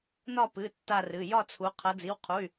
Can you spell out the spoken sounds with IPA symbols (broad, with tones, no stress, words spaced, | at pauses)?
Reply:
nɒ˦˨pɨ˩˧˩ tːa˦˨rɨ˩˧˩ jɒ˦˨t͡sʰu˩˧ qʰʌ˩˧d͡zi˩˧˩wqʰu˩˧˩y̯